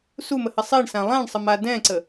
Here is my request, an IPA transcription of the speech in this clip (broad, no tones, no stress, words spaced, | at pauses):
suməhɘ sˤeɳsã lˠãɳsˤəma dɛ̃ǀə